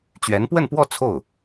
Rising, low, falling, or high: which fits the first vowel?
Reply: rising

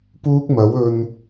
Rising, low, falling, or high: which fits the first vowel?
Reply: high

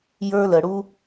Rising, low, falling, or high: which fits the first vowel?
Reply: high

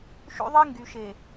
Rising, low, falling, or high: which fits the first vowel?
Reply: high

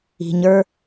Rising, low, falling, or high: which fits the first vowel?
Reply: low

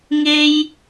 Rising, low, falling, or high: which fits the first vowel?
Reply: high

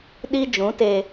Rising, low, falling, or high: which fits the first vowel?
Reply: high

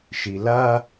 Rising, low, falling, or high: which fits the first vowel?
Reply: low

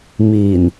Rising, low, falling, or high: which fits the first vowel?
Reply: low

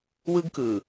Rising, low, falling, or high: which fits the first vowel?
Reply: high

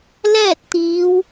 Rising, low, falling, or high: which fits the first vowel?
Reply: falling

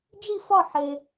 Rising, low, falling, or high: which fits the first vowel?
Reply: falling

